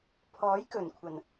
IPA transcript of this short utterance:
pʰ ɔː˨˥ j k ɵ˨˩ n kʷʰ ɐ˨˩ n

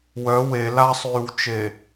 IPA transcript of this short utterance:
w œ w e l a sˤ yː w t͡ʃ e

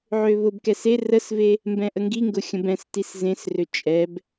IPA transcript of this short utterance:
ʕ ø β ʊ b k ɛ s e r ə s v e | m b ɛ̃ ʔ ə ŋ ɡ i ŋ ɡ ʊ xʲ ə̃ b ɛ̃ s t i s z ẽ s r ø t͡ʃʼ ɛ b

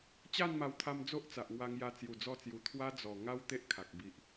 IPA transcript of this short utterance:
t͡ɕ a˥˧ n m a˧ w t̪ʰ a˧ m d͡z o˦ ʔ t͡s a˨ ʔ ŋ w a˧ ŋ j a˧ t͡s j u˨˩ d͡z ɔ˧ t͡s j u˨˩ t̪ʰ w a˦ d͡z ɔ˨˩ ŋ a˦ w t̪ e˦ ʔ kʰ a˨ k̚ b i˨ ʔ

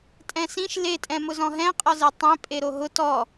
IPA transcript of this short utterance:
tʼ ɛ̃ s ĩ ʃ l e tʼ ɛ̃ m ʊ z ɔ̃ ɦ ɛ̃ qʼ ɔ z e tˤ ẽ pʼ e ɾ o ɦ ʊ t ɔ

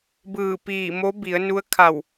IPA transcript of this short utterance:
b ɯː˧˩ p iː˧˩ m o˧˥ b i˩˧ ə̯ n u˧˥ ə̯ kʰ a˧˩ w

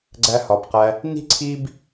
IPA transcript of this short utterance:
ɡ͡ǀ æ˧ h ɒ˨ b q æ˧ | n i̤˦ ǀʰ i˦ b

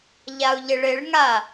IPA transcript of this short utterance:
ʎ a u̯ ʎ ɪ ɭ ɪ ɭ ŋ a

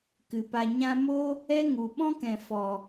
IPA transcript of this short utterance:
k ɨ˨ p a˧ ɲ ã˧ m o˦ | ɛ˦ ŋ u˨ ɓ ɔ̃˦ k ɛ̃˨ f ɔ˨

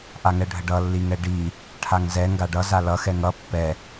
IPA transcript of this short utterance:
ʔ a ŋ ɛ ɖʱ ə ɖ ʌ lː i ŋ ɛ ɖ i | ʈʰ a ŋ z ɛ ŋ ɡ a ɖ ʌ z a l ʌ x ɛ ŋ ʌ pː ɛ

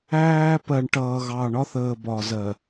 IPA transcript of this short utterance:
æː˦ p ɜ˨ ɳ ʈ ʌː˨ ɣ ɑ˨ ɳ ɒ˦ θ əː˨ b ɒ˨ z ɜ˨

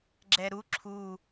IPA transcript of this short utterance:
ɡ͡ǁ ɛ ɾ u ǁʰ u

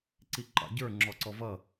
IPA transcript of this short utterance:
ǀ i ǃ ɑ̰ ɟ ə˞ ŋ͡ǁ ɔ ǀ ɔ v ʌ

